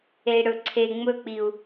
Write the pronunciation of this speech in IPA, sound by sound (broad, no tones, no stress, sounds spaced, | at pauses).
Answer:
e i̯ ɽ ɵ ǀʰ e ŋ͡m ɵ k͡p i u̯